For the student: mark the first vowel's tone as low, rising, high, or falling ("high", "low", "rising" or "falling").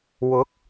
rising